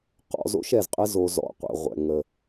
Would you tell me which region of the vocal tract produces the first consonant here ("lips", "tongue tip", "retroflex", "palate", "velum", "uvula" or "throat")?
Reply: uvula